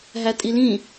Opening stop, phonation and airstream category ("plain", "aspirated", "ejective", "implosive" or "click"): ejective